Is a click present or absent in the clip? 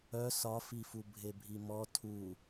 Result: absent